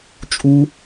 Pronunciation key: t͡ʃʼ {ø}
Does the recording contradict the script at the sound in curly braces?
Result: yes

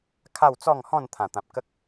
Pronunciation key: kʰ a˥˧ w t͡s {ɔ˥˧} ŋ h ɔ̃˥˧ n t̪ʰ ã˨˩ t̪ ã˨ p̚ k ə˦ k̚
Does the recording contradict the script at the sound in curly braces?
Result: no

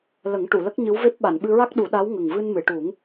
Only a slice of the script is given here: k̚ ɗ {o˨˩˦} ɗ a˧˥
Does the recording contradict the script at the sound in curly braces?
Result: yes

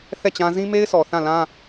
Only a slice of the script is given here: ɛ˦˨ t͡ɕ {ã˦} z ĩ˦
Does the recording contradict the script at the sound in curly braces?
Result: no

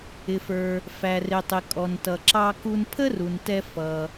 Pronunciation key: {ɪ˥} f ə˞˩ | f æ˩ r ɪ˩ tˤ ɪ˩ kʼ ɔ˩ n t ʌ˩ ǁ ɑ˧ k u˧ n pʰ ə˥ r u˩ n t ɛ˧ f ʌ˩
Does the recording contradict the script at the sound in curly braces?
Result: yes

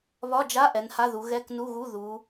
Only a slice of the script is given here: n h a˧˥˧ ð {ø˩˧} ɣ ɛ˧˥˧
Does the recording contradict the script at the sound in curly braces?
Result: yes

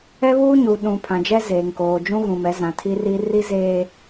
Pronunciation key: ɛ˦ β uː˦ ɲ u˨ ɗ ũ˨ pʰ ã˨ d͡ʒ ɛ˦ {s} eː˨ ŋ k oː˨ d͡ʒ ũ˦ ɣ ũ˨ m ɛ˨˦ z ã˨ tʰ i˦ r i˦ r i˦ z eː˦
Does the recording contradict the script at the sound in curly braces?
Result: yes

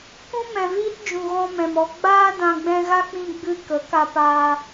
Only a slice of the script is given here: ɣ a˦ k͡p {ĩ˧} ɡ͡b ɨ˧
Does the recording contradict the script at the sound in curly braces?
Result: no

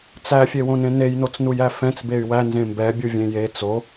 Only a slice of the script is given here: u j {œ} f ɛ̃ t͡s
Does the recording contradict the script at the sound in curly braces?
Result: yes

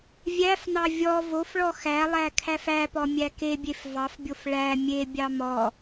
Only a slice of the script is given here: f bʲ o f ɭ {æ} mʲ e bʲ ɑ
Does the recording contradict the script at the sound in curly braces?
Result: no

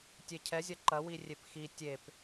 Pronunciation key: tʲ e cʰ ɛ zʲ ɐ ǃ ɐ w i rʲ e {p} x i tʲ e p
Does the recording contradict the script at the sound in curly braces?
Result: no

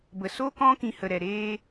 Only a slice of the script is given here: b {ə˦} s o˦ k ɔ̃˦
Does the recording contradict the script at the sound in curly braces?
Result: yes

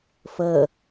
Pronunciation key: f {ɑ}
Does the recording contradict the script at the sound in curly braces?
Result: yes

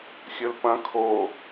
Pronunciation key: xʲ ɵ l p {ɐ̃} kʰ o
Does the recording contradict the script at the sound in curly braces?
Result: no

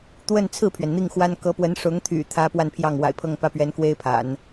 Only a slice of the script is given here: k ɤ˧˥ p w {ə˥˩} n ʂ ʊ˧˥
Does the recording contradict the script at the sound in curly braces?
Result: yes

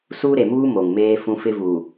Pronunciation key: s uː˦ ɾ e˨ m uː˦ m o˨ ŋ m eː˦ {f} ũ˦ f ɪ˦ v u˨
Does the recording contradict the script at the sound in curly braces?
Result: no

